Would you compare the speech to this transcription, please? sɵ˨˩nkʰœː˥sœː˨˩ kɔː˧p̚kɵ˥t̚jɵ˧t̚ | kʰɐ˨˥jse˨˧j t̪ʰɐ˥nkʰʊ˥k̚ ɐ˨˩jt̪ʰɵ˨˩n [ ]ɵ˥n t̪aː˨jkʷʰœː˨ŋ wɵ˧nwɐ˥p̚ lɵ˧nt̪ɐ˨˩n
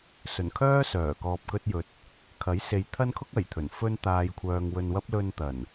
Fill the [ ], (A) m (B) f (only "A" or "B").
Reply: B